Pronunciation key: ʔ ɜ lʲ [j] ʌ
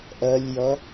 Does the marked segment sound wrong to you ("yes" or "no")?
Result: no